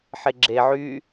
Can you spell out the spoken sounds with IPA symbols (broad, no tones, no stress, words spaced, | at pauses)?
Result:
ħeɡ͡ǁe ʕy